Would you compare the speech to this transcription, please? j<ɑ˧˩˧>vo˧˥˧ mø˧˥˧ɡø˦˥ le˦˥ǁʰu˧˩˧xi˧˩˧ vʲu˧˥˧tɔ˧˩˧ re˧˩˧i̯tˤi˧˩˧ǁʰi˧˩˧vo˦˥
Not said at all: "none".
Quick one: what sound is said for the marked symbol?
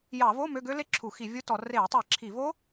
ɑ˧˩˧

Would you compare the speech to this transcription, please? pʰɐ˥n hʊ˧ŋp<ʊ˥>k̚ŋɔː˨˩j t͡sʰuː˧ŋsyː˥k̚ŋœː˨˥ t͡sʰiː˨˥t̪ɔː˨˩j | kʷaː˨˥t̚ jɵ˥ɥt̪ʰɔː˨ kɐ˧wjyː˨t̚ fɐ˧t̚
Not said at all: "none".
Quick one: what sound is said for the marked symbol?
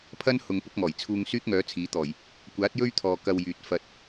ʊ˥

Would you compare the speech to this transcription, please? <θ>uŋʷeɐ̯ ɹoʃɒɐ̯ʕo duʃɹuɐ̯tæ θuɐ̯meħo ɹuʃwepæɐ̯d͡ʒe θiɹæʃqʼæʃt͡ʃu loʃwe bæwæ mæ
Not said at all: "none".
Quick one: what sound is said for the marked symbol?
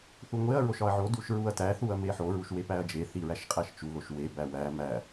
θ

